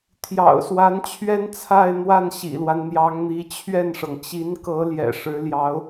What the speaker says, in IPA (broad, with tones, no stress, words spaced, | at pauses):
t̪ʰjɑ̰˨˩ʊ̯ swa˧˥nt͡ɕʰɥɛ˥nt͡sʰa˥˧ɪ̯n̪wa˥˩n ɕḭ˨˩lwa˦nn̪jɑ˧˥ŋn̪i˧˥ t͡ɕʰɥɛ˥˩nʂɤ˩ŋ t͡ɕi˧˥nkɤ˧˥ ljɛ̰˨˩ʂɻ̩˧˥ljɑ˧˥ʊ̯